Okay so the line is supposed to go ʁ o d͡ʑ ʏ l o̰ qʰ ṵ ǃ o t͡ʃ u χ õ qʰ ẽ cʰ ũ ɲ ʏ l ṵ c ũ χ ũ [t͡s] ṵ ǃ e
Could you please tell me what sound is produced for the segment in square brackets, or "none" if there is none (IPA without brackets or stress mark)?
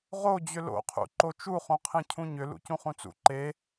t͡s